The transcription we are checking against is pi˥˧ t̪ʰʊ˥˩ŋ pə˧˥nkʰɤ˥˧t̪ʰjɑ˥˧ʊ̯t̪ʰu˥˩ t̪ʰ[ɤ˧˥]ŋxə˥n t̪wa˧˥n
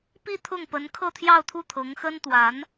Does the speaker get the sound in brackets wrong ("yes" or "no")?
no